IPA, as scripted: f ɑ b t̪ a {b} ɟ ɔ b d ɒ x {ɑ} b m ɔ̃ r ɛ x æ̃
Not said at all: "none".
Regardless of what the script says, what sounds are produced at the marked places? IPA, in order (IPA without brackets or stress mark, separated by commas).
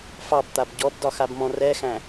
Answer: b, a